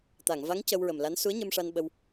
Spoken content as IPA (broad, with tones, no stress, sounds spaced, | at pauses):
t̪ a˨˩˨ ŋ v a˧˥ ŋ c ə˧ w ɹ ə˨˩ m l a˧˥ n s u˧˥ ə̯ ɲ ə˧ m ʂ a˧ n ɓ ə˧ w